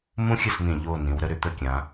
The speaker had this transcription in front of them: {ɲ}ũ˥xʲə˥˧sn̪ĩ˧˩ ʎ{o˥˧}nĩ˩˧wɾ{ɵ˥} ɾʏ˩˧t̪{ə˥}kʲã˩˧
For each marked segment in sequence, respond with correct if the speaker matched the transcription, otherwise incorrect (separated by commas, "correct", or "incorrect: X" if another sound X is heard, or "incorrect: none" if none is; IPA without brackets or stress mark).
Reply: incorrect: m, correct, incorrect: ə˥, incorrect: ə˥˧